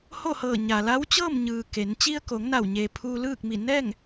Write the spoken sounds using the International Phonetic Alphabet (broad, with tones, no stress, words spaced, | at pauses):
ho˥˨hɤː˧˩ɲaː˩la˧˥w t͡ɕɤː˥˨mɲɯː˩ ke˩˧n t͡ɕi˧ə̯ko˩˧ŋ na˧˩wɲeː˩ pʰuː˧lɯː˥˨k̚mi˧˩ nɛː˥˨ŋ